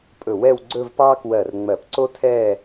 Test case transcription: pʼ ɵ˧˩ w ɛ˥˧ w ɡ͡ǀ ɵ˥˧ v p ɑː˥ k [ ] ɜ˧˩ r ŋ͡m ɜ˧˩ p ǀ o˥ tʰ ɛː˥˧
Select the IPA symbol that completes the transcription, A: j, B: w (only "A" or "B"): B